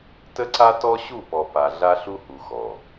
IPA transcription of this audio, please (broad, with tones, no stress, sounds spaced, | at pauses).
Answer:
t ə˦ ǀ a˦ t ɔ˦ ɕ u˦˨ p ɔ˨ p a˨ ɮ a˦ ɬ u˦ h u˨ x ɔ˨